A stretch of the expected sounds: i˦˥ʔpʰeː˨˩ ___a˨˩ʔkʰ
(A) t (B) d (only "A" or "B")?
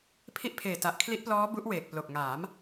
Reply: A